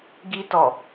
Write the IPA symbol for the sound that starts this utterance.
ɡ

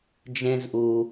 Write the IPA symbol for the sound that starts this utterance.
d͡ʒ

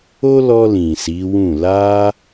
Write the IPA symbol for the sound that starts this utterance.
o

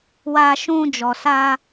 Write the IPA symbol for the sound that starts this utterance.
w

